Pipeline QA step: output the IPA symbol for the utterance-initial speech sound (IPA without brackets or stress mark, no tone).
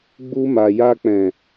ɡ͡b